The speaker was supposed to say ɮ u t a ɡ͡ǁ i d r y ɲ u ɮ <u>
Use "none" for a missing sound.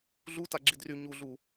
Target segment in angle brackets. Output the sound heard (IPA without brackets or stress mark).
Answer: u